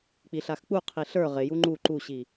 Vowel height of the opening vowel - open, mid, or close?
close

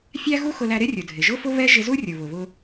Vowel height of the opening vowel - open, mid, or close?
open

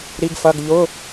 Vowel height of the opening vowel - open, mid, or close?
close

